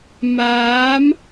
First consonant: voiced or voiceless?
voiced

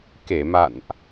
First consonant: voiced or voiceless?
voiceless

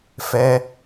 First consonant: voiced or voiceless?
voiceless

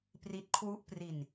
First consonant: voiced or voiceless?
voiceless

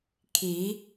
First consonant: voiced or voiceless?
voiceless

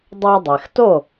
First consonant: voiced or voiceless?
voiced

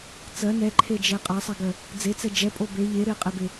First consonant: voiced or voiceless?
voiceless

